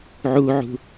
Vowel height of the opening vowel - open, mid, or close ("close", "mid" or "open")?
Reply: close